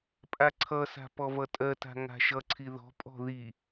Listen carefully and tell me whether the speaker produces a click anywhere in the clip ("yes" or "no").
yes